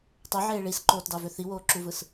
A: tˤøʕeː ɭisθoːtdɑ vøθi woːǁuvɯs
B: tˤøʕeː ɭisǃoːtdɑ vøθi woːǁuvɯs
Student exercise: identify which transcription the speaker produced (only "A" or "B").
B